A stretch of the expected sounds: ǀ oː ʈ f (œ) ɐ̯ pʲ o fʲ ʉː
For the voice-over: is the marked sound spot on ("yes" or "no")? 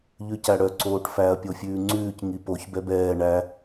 no